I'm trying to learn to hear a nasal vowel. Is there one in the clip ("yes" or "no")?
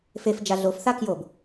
no